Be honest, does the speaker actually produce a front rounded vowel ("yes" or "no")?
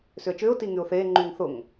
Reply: yes